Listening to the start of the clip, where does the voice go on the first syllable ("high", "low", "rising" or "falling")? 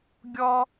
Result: high